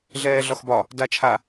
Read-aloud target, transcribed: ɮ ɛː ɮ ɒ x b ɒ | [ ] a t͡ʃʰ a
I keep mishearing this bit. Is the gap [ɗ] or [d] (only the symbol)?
d